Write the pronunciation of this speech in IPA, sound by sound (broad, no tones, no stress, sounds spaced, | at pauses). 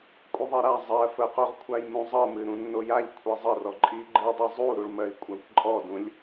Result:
kʷʼ ə ðˤ ɜ ɾ a zˤ ɜ f ə q o ʁ kʷʰ a j m ũ zˤ ɤ m ɨ ɾ ũ nː o j a ʎ kʷʰ i zˤ ə r ɔ ǃʼ i ɡ͡ǃ ɨ dˤ i zˤ u ɾ u ɭ m ɜ i̯ kʷʼ a kʷ ǃʼ ɔ d ũ lʲ